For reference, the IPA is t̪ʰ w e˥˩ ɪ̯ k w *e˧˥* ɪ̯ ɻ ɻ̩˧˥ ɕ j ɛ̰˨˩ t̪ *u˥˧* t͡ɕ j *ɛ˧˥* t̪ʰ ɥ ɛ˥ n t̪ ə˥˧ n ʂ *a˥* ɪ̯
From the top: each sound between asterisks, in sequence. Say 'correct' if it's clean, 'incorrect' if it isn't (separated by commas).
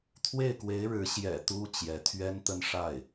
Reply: correct, incorrect, correct, incorrect